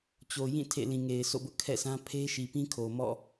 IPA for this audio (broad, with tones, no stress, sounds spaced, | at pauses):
t͡ɕ o˨ j ĩ˦˨ tʰ ḛ˦˨ l ĩ˨ ŋ e˨ ɪ̯ sʰ o̰˦˨ b ʊ˦ ʔ kʰ ɛ̰˦˨ sʰ ã˦ pʰ e˦ ʃ i˨ p ĩ˦ kʰ o˨ m ɔ̰˦˨